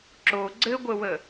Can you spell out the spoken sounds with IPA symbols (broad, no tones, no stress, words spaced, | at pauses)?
ǁo ɡ͡ǀɘɡʷəwə